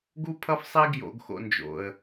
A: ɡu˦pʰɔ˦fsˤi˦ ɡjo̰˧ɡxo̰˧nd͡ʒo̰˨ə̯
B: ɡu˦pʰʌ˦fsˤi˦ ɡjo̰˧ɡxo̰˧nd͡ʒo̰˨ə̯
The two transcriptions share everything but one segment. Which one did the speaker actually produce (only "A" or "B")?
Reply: B